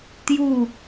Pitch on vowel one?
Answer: falling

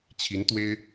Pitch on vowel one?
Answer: rising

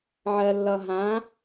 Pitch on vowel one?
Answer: low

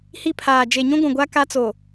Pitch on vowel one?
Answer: falling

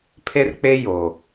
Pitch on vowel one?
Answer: high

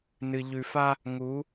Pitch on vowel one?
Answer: low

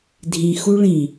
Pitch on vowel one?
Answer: low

